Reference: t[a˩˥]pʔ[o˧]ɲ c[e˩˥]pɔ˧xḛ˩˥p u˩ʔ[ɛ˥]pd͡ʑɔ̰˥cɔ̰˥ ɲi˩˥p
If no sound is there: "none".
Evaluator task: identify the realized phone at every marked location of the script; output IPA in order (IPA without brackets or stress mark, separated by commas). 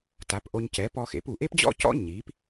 a˩˥, o˧, ɛ˩˥, e˥